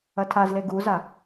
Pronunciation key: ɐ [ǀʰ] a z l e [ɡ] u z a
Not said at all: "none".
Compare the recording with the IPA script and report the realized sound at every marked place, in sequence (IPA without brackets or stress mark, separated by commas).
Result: tʰ, ɡ